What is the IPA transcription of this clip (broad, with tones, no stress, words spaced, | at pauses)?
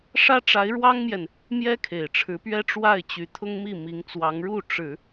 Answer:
ʂä˥ʈ͡ʂa˧˥ɪ̯ɻwɑ˥ŋmjɛ˨n | mjɛ˥kʰe˨˩ɪ̯ʈ͡ʂʰɻ̩˧˥pɥɛ˥ ʈ͡ʂwa˥˩ɪ̯t͡ɕy˧˥t̪ʰʊ˥ŋmi˥˩ mi˧˥ŋt͡swɑ˧˥ŋɻu˥˩ ʈ͡ʂɻ̩˨˩˦